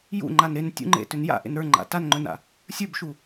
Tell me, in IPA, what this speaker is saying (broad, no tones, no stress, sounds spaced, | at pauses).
j ṵ ŋ͡ǃ a n ɾ e n tʲ ṵ ŋ͡ǃ ḛ t ʏ n j a̰ ʔ ḛ n ɾ ə˞ ŋ͡ǃ a̰ t a n ŋ͡ǃ ɵ n a̰ | sʲ ə˞ b ʃ u